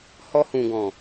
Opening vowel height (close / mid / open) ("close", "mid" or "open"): mid